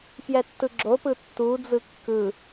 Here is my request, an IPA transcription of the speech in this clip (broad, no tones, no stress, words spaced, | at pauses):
fjɛtːɯɡ͡ǁopɯ tːud͡zɯ kːɯ